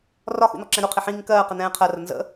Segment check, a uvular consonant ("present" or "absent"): present